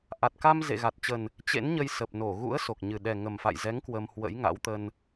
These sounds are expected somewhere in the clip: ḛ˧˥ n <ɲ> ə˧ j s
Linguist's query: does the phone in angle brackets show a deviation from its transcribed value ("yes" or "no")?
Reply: no